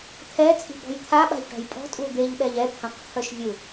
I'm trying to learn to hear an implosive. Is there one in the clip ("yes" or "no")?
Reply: yes